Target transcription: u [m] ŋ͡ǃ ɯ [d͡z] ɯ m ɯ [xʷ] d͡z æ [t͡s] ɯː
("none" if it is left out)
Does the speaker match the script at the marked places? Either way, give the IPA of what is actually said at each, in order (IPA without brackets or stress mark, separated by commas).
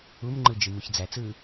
m, d͡ʒ, ç, t͡s